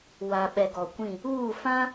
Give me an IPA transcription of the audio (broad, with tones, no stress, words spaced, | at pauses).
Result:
wa˨ɓɛ˨ ɡɔ˨kʷĩ˦˨ | uː˦˨fã˦